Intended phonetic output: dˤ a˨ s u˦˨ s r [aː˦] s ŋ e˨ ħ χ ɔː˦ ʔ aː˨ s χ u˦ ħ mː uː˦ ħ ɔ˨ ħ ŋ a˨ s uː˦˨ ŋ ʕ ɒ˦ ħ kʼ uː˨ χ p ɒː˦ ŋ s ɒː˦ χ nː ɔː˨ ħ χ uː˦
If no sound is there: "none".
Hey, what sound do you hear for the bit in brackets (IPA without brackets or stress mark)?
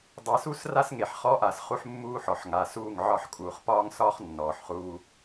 a˦